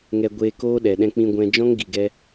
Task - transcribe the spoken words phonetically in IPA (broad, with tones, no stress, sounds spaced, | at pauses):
ŋ ɛ˧ ɡʷ eː˧ k oː˦ ɗ ɛ˨ ɗ ɛ̃˦ k͡p ĩ˧ ɡʷ ɛ̃˧ d͡ʒ ɔ̃˦ ŋ ɡ i˨ ɡ ɛ˧